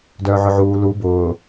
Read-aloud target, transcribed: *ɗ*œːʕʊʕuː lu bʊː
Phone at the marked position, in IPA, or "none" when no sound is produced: d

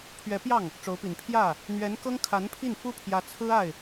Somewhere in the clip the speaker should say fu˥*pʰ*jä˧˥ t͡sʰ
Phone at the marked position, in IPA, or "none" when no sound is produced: pʰ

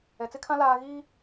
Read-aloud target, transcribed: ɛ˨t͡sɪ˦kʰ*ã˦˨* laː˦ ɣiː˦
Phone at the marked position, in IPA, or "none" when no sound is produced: ã˦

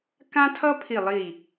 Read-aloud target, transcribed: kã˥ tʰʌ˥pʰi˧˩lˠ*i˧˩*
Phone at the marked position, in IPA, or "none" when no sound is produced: i˧˩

